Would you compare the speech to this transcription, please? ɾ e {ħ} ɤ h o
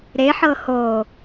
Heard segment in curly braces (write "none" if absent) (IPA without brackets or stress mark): ħ